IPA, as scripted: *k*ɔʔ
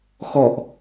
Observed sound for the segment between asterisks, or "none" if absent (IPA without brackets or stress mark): x